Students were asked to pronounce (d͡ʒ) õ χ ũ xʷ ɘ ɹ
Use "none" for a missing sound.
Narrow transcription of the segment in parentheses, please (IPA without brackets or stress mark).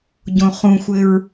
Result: ɟ